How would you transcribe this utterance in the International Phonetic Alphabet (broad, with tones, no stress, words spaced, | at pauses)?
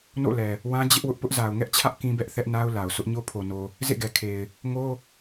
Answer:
no̰˦˨lɛ˨ | wã˦ d͡ʑɪ˦ʔwʊ˦ʔpʊ˦ʔ za˨ʊ̯ŋɛ˦ʔt͡ɕʰä˦ʔ kĩ˦bɛ˦ʔθɛ˦ʔna˦ʊ̯ la˨ʊ̯ sʰʊ˦ʔɲo˦pʰo˨no˨ | zḛ˦˨ɡɛ˨kʰe˨ɪ̯ | ŋo˦